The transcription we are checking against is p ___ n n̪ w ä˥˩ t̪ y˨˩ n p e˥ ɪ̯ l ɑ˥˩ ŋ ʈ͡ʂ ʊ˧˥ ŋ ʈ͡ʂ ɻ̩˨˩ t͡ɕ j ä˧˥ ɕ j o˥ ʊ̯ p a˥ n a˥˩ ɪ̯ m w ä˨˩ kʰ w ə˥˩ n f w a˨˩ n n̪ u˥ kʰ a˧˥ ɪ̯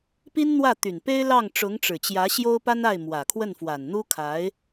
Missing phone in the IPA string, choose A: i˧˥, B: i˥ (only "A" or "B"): B